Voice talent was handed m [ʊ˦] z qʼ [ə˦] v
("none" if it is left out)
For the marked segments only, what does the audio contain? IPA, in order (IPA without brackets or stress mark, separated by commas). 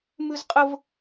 ʉ˦, ə˦